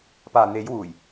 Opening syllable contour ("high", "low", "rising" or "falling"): low